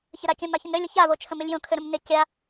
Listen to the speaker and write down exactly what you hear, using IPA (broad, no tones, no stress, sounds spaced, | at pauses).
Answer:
ç ə ɾ a kʲ ə̃ m a ç ə̃ n ɾ ø lʲ ə ç a v o t͡ʃʰ ə̃ m ɪ lʲ j õ kʰ ø ɾ ə̃ m n ɪ kʲ a